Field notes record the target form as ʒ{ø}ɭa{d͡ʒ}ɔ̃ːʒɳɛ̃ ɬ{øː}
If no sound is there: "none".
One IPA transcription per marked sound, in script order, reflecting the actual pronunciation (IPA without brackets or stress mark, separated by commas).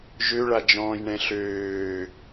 ø, d͡ʒ, øː